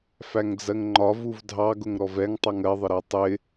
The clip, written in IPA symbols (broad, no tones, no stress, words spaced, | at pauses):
fæŋd͡zɜŋŋ͡ǃɒvuv dʱɑɡʊŋɾɔv ɛŋtˤʌŋ ɜðˤɪɾɜ tˤɪ